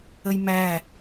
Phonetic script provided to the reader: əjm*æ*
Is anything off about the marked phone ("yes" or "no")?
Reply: no